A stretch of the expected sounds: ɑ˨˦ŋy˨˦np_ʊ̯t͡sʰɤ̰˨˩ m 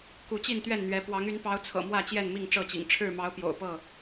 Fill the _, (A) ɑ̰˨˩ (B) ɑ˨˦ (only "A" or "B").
B